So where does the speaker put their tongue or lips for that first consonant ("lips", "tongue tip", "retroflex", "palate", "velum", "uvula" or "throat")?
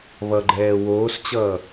lips